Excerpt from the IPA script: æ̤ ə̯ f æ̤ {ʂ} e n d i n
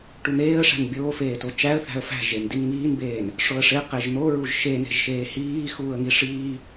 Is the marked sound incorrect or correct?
incorrect